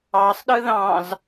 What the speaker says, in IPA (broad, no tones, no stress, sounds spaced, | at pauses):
ɑ sˤ ɗ ɯ ð ɑ̃ z